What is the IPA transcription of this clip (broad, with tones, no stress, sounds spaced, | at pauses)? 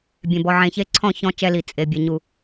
bʲ ẽ˨ b ɔ˨ ʕ ẽ˨ ç e˦ ǀʰ ɔ̃˦˨ ç ɔ̃˦˨ t͡ʃ ɛ˦ l i˨ t͡sʼ e˨ bʲ ɛ˨ ɲ u˨